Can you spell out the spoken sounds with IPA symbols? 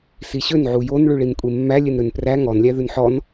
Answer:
s i ɕ ø n ʕ u j o n ɭ ʉ ɭ i n kʷʼ e mː æ lʲ e n ɾ ø n p r æ ŋ ɔ n lʲ æ ð ʉ n ħ ɔ n

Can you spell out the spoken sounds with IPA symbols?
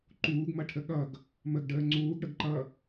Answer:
ǃ uː ɡ m ʌ ʈʰ ə ɠ ʌ ɡ | m ə ɡ ɖ əː ŋ͡ǀ uː ɡ ɽ ə ɡ ǃ ʌ

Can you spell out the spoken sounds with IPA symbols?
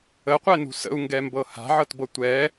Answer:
ə qʷ ɛ n ṳ s ə̰ u̯ ŋ ɡ ɛ m b ɤ h a̤ ʕ ɤ t b ɤ tʷ ɛ

